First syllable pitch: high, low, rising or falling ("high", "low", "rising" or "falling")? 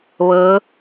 rising